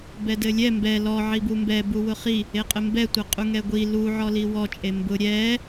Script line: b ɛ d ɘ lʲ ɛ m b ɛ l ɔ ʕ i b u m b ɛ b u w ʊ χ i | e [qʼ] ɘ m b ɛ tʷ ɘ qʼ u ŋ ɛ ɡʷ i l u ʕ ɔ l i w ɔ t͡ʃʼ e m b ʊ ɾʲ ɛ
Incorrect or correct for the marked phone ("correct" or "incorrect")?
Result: correct